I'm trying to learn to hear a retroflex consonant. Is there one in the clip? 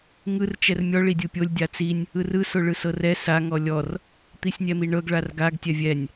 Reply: yes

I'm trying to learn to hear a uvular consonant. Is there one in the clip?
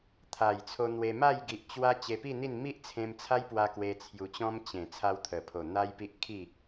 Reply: no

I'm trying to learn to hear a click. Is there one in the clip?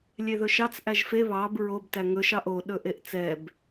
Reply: no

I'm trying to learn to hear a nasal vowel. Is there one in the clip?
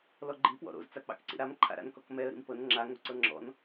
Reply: no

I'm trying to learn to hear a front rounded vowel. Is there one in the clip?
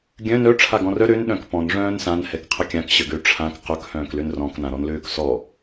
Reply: yes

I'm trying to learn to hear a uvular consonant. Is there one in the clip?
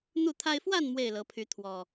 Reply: no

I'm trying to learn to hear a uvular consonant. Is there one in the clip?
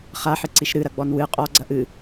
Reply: yes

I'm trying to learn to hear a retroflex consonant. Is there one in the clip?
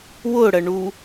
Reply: yes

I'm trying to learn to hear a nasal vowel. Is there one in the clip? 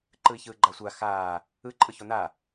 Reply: no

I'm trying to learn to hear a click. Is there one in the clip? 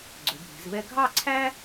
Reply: yes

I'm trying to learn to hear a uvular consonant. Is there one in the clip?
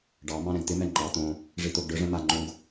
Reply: no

